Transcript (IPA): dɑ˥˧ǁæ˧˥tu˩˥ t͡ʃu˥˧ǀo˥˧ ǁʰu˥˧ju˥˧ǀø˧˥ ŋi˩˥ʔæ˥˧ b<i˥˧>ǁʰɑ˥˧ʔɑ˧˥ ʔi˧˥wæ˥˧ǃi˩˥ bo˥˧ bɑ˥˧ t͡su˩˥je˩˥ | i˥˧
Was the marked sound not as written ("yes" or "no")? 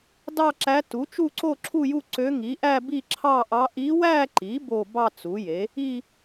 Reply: no